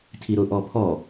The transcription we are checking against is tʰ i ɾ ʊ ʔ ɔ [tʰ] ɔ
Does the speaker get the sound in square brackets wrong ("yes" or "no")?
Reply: yes